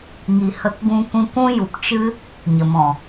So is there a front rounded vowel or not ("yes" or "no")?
no